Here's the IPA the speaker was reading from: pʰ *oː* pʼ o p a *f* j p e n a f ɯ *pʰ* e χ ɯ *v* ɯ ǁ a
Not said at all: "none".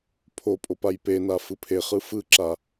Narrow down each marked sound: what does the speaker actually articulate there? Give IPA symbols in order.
o, none, pʰ, f

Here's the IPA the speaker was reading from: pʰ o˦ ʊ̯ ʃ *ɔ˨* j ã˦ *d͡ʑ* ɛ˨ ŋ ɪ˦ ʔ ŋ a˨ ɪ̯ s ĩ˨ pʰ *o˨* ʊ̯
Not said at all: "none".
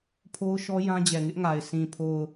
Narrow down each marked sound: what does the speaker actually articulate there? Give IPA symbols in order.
ɔ˦, d͡ʑ, o˨

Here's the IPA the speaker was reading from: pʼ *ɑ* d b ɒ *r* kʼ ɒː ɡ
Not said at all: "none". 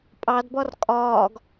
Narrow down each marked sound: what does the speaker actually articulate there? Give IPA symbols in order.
ɑ, r

